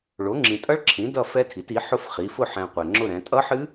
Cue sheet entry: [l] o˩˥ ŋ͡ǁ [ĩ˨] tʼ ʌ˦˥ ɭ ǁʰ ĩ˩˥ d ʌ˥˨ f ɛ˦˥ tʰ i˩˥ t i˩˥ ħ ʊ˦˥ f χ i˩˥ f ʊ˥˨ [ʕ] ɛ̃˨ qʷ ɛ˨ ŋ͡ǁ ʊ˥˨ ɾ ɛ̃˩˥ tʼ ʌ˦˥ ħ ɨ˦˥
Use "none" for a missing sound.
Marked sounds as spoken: ɭ, ĩ˨, ħ

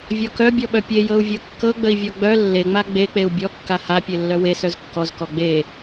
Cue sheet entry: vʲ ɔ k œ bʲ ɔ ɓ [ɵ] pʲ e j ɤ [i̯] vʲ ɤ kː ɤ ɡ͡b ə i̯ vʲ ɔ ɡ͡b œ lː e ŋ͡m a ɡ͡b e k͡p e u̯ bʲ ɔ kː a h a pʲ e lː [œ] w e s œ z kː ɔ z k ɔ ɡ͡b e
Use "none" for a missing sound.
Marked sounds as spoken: œ, u̯, œ

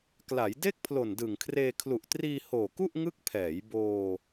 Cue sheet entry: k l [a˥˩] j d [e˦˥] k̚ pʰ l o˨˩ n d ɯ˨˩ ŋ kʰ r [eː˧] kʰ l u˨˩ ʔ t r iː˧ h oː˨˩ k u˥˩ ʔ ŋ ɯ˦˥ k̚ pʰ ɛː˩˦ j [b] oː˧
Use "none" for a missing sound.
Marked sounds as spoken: a˩˦, e˥˩, eː˧, b

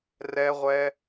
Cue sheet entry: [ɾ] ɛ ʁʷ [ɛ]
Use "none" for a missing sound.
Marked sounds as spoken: r, ɛ

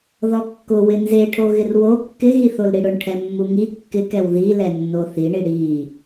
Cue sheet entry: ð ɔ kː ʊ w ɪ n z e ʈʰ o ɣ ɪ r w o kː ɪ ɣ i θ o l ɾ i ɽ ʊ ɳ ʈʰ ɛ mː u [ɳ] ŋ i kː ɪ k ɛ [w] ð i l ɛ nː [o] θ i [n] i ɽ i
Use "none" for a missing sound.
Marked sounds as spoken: none, w, o, ɳ

